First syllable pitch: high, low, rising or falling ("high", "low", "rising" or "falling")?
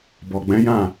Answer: low